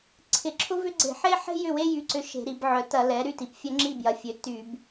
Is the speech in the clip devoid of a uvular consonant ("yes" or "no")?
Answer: yes